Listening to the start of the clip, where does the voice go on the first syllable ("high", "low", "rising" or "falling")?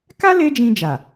high